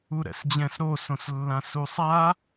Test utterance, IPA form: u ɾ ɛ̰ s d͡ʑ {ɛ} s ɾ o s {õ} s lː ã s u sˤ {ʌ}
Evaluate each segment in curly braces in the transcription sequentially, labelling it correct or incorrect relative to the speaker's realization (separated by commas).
incorrect, correct, incorrect